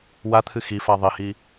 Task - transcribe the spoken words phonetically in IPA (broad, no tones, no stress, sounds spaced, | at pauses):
w a t̪ʰ ɨ x i f a ðˤ i h i